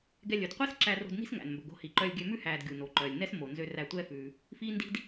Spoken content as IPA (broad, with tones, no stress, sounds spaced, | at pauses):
ɡ ɛ˧ lʲ ɵ˩ d qʷ i˥ s ǁ æ˧ r o̤˧ d n i̤˥ s ŋ æ̰˩ n m b ɵ˩ ɡ o̤˧ h i˩ ǃ œ˧ lʲ ɡʲ ø˧ m ʉ˥ h æː˩ d ɡʲ u˩ n o˩ ǃ œː˩ lʲ n ɛ˥ s m o˩ n z ø˧ r æ˧ tʷ ɛː˧ f ʉː˩ | f iː˥ n d i̤˥ d